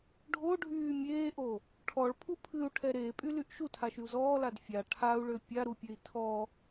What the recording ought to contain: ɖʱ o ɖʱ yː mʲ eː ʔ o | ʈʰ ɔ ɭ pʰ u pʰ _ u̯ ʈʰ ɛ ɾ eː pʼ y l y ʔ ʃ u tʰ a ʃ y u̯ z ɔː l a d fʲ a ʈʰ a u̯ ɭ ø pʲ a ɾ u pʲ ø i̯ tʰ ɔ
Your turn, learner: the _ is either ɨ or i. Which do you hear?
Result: ɨ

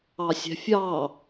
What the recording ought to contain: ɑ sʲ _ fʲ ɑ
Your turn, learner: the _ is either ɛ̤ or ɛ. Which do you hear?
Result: ɛ̤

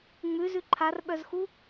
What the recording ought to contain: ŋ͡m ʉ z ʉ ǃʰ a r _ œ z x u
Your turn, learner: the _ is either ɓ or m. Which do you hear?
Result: ɓ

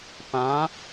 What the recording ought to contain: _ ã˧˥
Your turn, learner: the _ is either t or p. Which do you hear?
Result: p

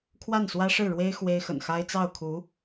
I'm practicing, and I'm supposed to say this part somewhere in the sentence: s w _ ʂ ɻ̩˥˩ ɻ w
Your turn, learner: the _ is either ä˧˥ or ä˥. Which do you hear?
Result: ä˥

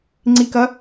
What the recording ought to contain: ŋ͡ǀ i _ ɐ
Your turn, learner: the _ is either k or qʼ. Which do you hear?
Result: k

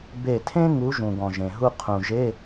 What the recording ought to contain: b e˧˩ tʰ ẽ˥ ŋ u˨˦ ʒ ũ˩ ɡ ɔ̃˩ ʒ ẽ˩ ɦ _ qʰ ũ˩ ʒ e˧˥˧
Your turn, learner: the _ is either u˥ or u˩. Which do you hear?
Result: u˥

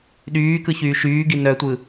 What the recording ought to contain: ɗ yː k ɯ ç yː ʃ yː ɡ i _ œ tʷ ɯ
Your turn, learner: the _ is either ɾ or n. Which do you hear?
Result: n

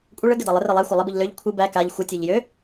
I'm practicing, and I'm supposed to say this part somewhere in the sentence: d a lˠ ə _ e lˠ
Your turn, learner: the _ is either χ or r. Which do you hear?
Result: r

